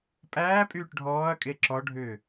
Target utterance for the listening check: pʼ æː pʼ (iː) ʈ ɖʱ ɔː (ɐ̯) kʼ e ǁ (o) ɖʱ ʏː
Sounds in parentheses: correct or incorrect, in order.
incorrect: yː, correct, incorrect: ɔ

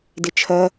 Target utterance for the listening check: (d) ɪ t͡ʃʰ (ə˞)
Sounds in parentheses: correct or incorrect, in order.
correct, incorrect: ɜ

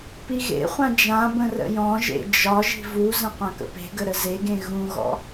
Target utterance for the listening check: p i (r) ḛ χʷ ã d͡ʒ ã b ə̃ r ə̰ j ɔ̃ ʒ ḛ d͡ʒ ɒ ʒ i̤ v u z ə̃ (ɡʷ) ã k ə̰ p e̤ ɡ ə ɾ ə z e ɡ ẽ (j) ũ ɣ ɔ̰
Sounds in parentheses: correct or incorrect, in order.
incorrect: ɣ, incorrect: qʷ, incorrect: ɣ

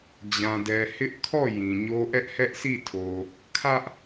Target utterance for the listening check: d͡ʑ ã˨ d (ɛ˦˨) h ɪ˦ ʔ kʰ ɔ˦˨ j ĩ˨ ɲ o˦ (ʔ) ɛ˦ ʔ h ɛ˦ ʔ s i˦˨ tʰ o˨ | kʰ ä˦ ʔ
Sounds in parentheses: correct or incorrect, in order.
incorrect: ɛ˨, correct

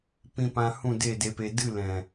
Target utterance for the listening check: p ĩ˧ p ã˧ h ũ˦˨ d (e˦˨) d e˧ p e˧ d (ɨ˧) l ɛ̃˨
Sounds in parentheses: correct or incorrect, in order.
correct, incorrect: ɨ˦˨

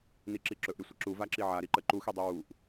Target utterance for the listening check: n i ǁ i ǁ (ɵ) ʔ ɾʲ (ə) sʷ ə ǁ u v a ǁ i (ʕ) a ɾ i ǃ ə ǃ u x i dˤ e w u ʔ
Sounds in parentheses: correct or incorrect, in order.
correct, correct, correct

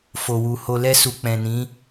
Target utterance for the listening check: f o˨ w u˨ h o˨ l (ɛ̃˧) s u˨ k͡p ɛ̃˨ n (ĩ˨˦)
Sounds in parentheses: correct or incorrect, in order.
incorrect: ɛ˧, correct

